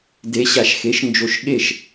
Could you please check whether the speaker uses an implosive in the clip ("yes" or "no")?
yes